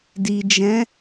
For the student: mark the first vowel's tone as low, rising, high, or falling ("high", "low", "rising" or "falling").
low